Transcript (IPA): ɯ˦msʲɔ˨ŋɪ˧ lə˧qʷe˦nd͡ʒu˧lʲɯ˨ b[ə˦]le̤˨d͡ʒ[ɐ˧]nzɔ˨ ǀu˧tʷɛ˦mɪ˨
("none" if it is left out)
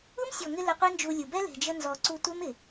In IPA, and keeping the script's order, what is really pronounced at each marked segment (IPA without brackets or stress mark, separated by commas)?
ɛ˦, ə˧